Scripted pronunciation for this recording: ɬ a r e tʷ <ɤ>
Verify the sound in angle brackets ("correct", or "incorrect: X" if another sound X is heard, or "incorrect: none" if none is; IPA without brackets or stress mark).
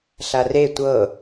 correct